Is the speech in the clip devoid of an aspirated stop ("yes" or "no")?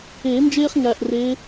yes